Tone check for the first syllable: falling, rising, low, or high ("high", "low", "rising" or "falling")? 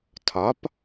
rising